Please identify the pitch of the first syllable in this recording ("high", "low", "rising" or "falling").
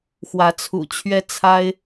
rising